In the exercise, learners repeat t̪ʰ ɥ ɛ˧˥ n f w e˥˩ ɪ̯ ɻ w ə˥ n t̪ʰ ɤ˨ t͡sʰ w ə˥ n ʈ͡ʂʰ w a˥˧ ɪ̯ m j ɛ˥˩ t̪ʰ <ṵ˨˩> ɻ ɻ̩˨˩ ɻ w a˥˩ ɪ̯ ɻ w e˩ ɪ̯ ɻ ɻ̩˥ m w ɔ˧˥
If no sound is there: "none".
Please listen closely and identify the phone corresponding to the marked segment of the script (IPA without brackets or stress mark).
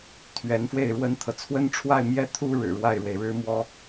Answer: u˥